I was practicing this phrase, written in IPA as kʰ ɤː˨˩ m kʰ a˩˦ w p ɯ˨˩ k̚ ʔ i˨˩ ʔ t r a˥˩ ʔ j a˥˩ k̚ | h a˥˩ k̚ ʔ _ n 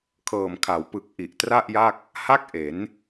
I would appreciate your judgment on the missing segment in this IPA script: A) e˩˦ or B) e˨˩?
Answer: A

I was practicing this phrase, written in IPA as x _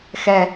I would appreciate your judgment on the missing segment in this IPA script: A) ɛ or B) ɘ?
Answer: A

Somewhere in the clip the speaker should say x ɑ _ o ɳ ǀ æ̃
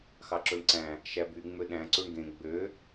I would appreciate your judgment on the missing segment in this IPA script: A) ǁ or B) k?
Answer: A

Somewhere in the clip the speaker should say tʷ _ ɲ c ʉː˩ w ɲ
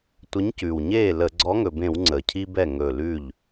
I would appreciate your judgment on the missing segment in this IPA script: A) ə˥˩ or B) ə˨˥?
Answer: B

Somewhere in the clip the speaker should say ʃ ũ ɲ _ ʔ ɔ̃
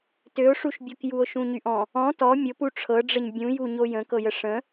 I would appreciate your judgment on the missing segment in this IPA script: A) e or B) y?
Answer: B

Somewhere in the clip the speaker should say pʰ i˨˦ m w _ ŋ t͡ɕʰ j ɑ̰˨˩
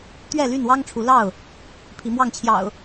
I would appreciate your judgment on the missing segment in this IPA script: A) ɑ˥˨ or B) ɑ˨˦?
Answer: A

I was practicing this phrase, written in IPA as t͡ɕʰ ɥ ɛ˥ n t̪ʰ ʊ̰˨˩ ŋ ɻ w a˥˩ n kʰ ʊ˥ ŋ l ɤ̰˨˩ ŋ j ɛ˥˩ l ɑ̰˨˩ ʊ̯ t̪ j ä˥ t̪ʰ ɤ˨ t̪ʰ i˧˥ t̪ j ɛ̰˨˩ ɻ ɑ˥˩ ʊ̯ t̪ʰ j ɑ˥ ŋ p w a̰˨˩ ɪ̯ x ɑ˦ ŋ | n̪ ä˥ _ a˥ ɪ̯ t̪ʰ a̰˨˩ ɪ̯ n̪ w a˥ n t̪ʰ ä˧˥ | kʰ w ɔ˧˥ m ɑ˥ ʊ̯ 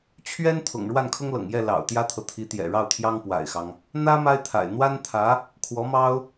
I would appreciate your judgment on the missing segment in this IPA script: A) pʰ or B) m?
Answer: B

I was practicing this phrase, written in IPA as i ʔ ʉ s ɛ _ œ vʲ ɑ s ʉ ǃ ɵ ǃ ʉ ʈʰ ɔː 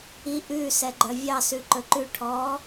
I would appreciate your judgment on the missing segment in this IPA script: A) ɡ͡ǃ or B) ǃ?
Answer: A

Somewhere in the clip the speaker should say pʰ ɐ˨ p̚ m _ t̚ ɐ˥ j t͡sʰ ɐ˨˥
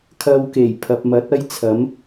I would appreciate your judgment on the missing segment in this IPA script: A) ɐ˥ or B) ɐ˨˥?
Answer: B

